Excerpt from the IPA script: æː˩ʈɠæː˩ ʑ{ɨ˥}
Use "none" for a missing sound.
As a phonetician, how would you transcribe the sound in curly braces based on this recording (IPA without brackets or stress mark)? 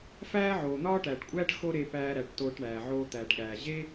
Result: e˥